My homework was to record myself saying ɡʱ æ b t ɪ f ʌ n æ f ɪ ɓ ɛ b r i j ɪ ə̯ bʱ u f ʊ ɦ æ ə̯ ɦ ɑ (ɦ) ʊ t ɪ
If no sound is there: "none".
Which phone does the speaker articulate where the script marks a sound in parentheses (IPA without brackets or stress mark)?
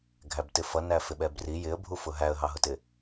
ɦ